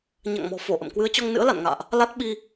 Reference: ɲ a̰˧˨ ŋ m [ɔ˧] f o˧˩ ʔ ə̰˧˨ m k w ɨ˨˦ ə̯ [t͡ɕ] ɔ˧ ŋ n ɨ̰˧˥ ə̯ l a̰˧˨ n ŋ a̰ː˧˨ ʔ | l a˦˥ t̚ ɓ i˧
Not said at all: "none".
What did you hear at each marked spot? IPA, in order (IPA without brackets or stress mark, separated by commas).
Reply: ɔ̤˨˩, t͡ɕ